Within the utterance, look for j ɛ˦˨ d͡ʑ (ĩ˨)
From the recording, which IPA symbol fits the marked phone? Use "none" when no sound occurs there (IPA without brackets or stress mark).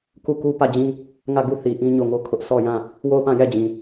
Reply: ĩ˨